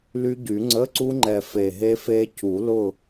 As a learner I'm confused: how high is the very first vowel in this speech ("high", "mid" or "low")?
high